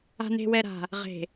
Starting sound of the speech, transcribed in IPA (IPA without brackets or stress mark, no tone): a̤